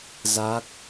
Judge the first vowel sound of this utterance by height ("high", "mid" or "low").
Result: low